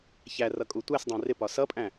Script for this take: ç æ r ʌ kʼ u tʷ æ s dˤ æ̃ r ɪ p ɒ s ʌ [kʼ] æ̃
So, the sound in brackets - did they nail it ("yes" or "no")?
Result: no